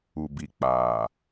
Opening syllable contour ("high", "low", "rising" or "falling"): low